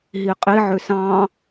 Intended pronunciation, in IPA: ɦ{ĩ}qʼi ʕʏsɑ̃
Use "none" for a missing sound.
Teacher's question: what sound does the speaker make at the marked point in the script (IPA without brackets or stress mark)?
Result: i